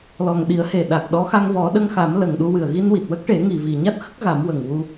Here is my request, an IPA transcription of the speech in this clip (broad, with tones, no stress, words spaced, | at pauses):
lɔ˨˩ŋɗi˨˩˦ə̯he˨˩ ɗa˨˩k̚ɗɔ˧˥ xa˧ŋvɔ˨˩˦ɗə˧ŋxa˨˩˦m lə˨˩ŋɗu˧wɨ˨˩ə̯ ɣi˧nwi˨˩t̚wə˦˥k̚ʈe˨˩˦ ŋi˨˩vi˨˩ɲa˦˥t̚xə˦˥k̚ ɣa˨˩˦mwə˨˩ŋwu˧